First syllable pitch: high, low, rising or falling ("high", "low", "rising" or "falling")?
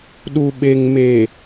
low